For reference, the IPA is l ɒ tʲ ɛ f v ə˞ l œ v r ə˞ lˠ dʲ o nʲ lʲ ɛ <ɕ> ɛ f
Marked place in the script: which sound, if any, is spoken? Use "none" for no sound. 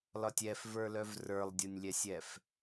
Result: sʲ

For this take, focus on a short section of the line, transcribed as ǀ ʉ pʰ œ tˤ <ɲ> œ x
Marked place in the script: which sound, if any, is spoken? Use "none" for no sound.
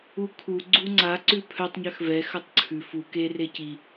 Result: ɲ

